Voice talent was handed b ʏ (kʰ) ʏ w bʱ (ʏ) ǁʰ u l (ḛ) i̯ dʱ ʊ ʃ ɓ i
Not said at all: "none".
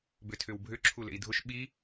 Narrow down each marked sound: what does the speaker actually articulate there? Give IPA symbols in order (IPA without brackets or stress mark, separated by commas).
tʰ, ʏ, ḛ